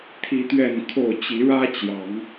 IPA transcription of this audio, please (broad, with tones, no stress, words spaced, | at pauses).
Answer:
t̪ʰi˦t̪ɥɛ˥˨nkʰo˥˨ʊ̯ t͡ɕi˨˦ɻä˦t͡ɕjɑ˨˦ŋ